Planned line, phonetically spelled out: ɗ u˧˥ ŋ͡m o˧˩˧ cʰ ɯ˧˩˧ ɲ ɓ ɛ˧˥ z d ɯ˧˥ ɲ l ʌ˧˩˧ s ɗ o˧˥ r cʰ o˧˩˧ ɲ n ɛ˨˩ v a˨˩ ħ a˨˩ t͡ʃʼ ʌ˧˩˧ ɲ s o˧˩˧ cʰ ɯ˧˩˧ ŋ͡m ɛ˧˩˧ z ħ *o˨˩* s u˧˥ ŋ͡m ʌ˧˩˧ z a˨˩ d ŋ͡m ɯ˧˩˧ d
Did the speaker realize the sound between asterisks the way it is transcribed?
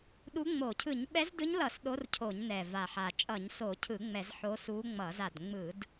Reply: no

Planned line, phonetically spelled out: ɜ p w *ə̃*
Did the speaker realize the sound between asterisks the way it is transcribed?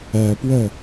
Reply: no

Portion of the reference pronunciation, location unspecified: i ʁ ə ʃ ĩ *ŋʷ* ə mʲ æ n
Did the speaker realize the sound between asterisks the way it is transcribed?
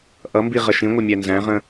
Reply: yes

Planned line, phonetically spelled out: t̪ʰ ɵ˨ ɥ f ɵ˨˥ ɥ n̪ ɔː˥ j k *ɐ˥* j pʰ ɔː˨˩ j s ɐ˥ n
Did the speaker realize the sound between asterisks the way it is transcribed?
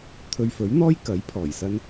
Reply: no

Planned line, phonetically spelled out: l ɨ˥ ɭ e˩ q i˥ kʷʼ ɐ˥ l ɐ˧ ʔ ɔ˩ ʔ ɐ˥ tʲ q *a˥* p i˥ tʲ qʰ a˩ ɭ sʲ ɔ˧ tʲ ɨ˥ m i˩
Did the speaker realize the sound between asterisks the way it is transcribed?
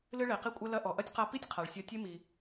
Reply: no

